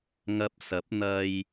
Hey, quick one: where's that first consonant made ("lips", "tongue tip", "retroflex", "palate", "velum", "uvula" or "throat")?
velum